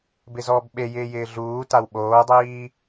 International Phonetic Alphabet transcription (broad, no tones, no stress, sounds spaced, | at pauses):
b ɪ z ɔː b ɓ e j ɪː j ɪː ɮ uː t a w ɓ oː dˤ iː